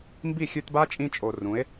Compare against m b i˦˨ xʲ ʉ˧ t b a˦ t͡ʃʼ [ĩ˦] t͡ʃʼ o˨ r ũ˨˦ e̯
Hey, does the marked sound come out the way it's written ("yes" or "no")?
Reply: no